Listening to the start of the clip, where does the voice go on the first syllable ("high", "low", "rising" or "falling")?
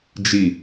low